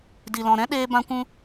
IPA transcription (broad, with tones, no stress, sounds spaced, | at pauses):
d i˨ l ɔ̃˨ ɾ ɛ̃˦ ɗ eː˧ b ã˧ kʷ ũ˧